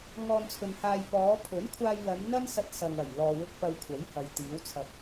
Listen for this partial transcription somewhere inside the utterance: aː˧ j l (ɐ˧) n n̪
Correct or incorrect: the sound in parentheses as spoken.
incorrect: ɐ˨˧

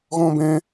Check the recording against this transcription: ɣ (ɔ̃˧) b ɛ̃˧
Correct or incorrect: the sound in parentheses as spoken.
correct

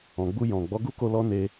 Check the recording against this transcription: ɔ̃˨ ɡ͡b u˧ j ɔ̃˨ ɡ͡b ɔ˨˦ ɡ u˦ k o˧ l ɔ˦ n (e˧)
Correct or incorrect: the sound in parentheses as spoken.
correct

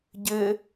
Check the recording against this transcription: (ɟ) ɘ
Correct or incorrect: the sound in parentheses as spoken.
correct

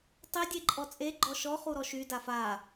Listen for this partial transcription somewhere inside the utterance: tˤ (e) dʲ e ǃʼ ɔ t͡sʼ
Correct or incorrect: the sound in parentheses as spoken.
correct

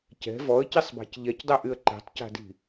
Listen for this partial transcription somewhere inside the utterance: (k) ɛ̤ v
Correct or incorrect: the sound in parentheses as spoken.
incorrect: c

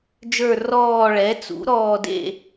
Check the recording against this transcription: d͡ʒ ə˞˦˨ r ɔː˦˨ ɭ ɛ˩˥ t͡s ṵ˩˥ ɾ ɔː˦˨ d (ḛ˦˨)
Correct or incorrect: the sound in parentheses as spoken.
correct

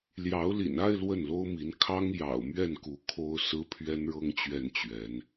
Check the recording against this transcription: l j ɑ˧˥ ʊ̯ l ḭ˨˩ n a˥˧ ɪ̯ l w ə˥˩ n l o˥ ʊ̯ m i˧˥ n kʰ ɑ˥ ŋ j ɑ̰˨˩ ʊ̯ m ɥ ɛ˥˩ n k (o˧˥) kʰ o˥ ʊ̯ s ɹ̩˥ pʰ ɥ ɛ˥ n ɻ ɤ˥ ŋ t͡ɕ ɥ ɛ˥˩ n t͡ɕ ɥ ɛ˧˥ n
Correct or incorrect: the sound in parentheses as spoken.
incorrect: u˧˥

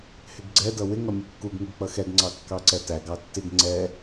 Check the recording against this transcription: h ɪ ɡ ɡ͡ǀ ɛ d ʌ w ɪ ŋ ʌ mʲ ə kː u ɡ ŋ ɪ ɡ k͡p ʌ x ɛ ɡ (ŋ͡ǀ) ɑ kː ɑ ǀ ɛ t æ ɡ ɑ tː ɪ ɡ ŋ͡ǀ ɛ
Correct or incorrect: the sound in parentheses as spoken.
correct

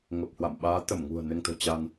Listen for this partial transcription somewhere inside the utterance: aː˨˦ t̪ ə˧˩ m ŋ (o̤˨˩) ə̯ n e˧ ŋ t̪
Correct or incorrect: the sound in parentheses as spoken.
incorrect: ṳ˨˩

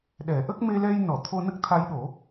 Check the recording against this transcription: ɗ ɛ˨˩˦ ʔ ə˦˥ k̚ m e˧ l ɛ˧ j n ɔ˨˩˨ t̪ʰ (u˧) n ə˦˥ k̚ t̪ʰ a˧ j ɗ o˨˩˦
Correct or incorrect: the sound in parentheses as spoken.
incorrect: o˧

